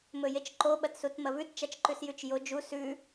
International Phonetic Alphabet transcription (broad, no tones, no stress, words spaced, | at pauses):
mɵjet͡ʃǃo ɓɐtsutmɐvʉt t͡ʃat͡ʃǃʉsjʉt͡ʃjo d͡ʒu sʉ